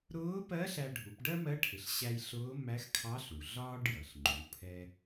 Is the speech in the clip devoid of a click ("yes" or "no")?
no